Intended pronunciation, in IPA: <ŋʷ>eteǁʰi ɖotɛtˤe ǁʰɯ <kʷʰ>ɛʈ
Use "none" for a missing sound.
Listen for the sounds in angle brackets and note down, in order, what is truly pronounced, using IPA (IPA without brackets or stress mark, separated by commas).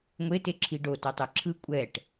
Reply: ŋʷ, kʷʼ